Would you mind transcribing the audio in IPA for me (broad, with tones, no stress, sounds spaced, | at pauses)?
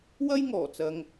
w ɐ˥ j ŋ ɔː˨˩ t͡s ɐ˧ ŋ